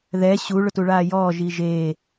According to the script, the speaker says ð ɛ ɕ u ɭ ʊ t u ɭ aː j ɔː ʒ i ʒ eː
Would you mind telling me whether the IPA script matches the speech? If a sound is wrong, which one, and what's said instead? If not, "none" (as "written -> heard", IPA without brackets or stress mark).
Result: none